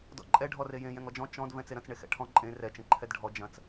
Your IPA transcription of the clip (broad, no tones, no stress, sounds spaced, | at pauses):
d ɔ̰ ǃʼ ɛ ɖʱ ɔ r e j ẽ j ɛ̃ ŋ ɔ d͡ʒ ɔ̃ t͡ʃ ɔ̃ d v ɛ̃ t͡s e ɾ ɐ̃ t͡s ɳ e x ɛ̰ ʈʰ ɔ̃ ǃʼ ẽ r ɛ t͡ʃ ẽ ǃʰ ɛ d ɖʱ ɔ d͡ʒ ɐ̃ t͡s